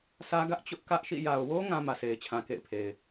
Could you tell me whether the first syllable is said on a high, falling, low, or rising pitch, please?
high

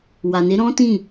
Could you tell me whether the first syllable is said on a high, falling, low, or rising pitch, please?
low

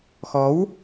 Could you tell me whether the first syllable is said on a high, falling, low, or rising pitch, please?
rising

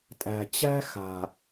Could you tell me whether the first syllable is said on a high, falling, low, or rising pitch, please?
low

